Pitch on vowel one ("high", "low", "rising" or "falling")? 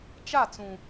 falling